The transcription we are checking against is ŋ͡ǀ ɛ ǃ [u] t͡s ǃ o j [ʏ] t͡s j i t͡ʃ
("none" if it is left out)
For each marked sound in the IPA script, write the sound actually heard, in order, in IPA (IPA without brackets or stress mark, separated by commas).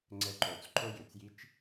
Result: o, ʏ